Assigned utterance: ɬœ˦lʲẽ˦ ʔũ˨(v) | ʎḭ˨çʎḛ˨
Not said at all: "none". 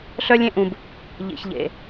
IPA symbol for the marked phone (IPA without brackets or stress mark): b